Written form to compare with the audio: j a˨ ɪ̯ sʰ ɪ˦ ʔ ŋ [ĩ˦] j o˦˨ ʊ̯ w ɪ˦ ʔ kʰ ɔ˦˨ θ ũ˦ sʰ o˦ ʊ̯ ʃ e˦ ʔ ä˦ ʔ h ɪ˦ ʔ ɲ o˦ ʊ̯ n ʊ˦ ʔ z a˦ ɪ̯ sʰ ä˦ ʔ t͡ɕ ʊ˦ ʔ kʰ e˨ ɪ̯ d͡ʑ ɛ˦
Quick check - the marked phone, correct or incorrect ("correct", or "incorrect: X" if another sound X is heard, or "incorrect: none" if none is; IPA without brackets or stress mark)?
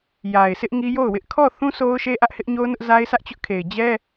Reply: incorrect: i˦